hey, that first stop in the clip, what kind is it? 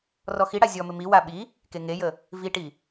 implosive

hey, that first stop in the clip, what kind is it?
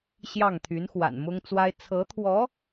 aspirated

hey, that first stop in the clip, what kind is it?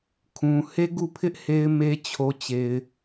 aspirated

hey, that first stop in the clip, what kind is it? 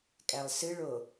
ejective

